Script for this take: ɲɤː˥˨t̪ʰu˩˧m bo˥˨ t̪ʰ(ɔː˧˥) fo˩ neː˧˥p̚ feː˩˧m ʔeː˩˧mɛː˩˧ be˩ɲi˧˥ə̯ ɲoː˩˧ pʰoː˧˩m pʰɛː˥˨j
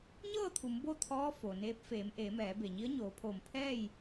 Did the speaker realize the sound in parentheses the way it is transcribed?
yes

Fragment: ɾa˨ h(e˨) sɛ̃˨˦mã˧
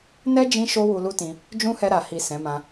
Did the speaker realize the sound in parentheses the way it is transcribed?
no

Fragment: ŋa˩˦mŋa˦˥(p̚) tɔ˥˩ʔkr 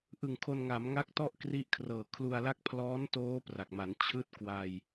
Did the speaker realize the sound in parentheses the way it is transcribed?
no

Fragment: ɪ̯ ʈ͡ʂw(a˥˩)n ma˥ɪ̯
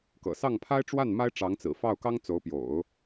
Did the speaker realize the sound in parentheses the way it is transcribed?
yes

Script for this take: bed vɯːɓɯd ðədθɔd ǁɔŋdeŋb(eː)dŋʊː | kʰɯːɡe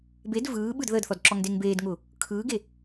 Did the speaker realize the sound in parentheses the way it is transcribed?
yes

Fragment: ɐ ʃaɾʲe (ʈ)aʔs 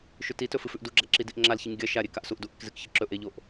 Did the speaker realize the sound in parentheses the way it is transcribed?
no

